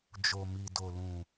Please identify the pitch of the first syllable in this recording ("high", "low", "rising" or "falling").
low